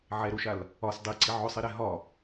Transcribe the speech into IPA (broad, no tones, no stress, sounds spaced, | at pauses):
ʕ ɛ ɾ o ʃ a l | ɒ s dˤ i ǀ i ʕ ʊ sˤ i ɾ ɛ ɦ ɒ